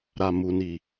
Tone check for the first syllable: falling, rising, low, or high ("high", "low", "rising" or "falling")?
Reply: low